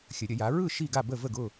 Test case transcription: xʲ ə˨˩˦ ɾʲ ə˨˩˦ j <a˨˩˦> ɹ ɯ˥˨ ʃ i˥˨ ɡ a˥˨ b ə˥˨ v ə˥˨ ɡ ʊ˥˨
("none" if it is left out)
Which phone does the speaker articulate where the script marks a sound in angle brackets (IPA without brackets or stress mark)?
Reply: a˨˥